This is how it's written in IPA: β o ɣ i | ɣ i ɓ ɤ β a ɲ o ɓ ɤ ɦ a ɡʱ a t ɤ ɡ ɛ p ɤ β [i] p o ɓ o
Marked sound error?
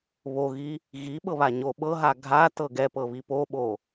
no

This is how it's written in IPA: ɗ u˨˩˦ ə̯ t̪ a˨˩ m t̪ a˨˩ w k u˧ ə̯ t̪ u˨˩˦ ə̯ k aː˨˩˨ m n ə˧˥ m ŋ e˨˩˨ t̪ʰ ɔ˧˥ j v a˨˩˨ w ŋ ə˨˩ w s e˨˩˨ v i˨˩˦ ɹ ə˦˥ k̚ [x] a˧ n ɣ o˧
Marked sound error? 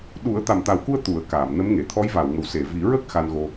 no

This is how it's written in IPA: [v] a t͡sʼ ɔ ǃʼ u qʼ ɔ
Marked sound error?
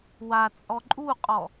yes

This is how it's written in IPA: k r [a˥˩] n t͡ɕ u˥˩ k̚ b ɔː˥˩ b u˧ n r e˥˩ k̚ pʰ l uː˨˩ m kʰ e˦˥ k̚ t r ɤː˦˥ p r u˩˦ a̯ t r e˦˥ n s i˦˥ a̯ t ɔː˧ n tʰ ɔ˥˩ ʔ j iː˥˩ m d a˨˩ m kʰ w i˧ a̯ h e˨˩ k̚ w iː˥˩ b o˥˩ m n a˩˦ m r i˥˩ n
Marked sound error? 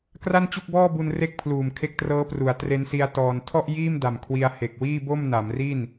no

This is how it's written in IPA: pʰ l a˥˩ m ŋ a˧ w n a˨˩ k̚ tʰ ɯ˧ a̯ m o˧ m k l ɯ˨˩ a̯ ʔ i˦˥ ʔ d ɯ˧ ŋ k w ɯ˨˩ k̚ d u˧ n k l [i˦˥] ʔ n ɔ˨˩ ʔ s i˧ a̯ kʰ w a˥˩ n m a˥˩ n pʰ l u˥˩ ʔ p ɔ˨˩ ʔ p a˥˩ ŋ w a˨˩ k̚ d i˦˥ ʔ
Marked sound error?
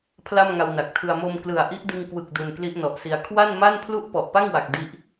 no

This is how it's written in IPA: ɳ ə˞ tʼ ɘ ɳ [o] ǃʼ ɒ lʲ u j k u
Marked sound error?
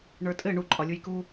yes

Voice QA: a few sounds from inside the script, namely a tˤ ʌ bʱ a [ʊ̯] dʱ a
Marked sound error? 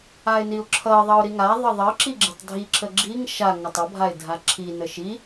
yes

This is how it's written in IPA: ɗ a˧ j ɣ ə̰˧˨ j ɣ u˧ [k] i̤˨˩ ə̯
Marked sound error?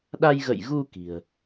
no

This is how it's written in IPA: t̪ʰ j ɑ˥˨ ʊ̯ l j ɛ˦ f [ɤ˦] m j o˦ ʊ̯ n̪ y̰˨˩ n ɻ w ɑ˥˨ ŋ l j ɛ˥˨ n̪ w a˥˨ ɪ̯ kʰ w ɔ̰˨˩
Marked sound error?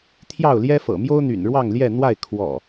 yes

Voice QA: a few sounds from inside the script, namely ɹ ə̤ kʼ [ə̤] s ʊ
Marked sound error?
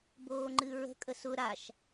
yes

